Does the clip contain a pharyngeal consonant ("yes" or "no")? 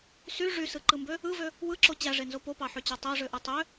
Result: yes